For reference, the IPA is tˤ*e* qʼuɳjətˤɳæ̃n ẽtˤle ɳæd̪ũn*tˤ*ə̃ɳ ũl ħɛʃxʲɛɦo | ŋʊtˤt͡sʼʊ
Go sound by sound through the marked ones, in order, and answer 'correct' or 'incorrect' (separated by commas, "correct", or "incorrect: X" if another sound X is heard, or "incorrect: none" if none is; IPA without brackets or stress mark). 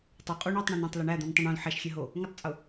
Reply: incorrect: ø, correct